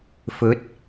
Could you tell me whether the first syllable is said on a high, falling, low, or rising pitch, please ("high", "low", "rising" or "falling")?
rising